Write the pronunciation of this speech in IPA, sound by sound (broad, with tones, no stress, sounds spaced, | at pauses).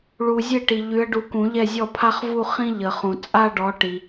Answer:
ɭ u˨ zʲ e˥˩ ʈ i˨ ʎ y˨˦ ə̯ ɖ u˨˦ k ũ˨˩˦ ʎ ɛ˥˩ zʲ ɔ˥˩ pʰ a˥ χ v u˥˧ χ ĩ˥ ʎ ə˨˩˦ χ ũ˨ t͡sʼ a˥˧ ɖ ɔ˨˦ ʈ i˨